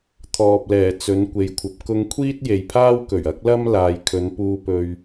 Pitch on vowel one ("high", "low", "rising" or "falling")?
low